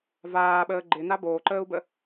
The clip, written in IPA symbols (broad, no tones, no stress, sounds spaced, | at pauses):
v aː ɓ əː ɡ͡ǃ ɪ n a b oː ǃ əː u̯ b ə